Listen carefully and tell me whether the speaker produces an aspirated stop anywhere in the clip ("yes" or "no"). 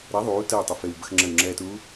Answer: no